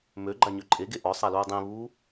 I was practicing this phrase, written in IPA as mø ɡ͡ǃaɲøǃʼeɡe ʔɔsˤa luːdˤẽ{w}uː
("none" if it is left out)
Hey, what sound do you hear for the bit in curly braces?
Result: β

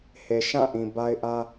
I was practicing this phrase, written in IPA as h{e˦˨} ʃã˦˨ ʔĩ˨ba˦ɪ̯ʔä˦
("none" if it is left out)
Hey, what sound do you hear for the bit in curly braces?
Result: e˨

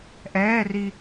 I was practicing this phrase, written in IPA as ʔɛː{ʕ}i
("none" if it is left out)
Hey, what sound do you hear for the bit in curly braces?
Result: r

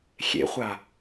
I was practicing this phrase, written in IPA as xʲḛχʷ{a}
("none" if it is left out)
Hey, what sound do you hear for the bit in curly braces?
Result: a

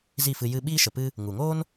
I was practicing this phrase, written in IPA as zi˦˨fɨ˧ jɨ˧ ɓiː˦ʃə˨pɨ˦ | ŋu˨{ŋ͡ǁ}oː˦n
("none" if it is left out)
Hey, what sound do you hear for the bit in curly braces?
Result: ŋ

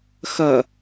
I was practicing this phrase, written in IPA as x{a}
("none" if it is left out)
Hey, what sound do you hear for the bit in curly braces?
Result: ɐ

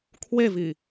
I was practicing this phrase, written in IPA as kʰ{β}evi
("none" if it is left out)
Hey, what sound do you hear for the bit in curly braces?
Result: w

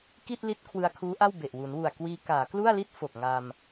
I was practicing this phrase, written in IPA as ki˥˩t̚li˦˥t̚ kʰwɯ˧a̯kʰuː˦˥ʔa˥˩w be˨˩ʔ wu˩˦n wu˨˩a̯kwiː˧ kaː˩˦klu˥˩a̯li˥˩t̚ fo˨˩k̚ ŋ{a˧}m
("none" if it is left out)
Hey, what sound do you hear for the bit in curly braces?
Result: a˧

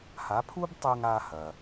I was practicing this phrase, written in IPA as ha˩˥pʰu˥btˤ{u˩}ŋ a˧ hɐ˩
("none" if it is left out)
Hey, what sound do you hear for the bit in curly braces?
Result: u˧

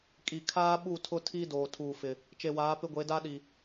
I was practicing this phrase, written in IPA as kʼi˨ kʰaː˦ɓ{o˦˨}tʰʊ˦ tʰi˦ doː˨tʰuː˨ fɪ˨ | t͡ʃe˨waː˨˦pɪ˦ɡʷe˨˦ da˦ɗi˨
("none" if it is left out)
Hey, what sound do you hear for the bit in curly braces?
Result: u˦˨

